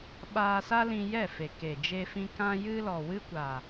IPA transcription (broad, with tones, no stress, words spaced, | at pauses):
ɓaː˧sa˦lĩ˧ jɛ˦˨fe˨ ke˨d͡ʒe˧fĩ˧ kã˧jɨ˧ lɔ˨wɨ˦kʷa˨